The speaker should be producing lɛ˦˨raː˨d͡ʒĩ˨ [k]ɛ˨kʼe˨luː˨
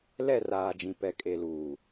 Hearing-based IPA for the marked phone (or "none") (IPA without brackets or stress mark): p